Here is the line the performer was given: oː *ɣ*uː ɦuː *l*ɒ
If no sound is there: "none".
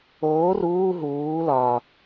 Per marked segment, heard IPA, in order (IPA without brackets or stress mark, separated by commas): r, l